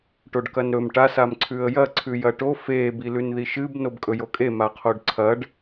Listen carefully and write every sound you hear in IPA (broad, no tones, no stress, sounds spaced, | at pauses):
ʈ o ɖ k ɐ n ɾ ɵ m ʈ a s a m ǀʰ ʉ ə̯ j ɐ ǀʰ ʉ j ɐ ʈ o f e b i l ʉ n ð i ʃ ɨ b n o b kʼ ɵ j o kʼ e m a qʰ o ɖ ǀʰ ɐ ɖ